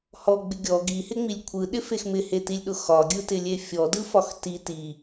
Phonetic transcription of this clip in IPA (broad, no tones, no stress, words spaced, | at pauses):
hɔɡ͡bɪ ɡʲɔ ɡihɪŋ͡milʲ kʷʰɯɗɪfex mɪhetilʲɗʊ xɒɡʲɯtɪlʲe fʲɔdɯfɒx ti ti